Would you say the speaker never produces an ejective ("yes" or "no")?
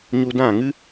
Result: yes